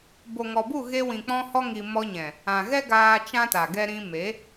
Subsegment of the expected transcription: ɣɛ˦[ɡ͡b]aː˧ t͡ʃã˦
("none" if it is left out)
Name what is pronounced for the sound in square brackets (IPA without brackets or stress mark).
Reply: ɡ